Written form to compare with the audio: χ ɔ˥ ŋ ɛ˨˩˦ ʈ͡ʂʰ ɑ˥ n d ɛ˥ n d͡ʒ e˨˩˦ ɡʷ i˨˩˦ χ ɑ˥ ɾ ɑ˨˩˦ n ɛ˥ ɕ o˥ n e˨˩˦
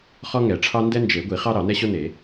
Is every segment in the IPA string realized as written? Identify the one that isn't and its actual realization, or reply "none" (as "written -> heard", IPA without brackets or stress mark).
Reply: none